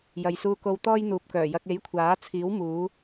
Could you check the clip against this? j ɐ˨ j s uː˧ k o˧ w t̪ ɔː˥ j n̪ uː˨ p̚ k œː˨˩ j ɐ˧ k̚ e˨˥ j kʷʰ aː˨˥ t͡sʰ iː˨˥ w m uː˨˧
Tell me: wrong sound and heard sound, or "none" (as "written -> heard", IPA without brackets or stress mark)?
none